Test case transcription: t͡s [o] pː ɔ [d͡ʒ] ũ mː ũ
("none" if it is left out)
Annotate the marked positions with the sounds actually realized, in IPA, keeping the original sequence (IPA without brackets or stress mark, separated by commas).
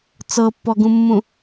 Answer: ɤ, ɡ